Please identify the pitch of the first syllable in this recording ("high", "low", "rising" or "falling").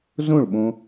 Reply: falling